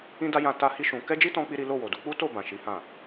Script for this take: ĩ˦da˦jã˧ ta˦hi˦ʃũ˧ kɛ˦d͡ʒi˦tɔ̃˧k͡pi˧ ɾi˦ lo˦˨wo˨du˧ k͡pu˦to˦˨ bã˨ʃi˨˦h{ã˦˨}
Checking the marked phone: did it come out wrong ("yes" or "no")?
no